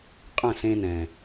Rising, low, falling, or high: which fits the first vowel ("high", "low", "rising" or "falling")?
falling